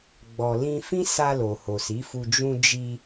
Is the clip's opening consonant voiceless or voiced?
voiced